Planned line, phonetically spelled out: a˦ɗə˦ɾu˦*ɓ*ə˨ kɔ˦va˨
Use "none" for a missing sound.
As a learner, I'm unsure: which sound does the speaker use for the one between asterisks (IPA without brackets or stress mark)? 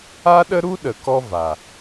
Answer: ɗ